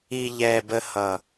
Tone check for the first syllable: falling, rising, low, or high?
low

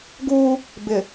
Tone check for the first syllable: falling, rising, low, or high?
high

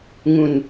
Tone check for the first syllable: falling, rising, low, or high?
low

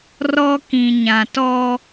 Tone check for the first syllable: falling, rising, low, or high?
high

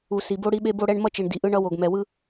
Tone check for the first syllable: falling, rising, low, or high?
low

